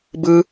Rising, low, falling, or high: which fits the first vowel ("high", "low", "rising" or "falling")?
high